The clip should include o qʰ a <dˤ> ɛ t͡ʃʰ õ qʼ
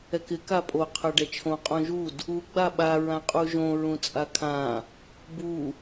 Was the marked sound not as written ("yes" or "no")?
yes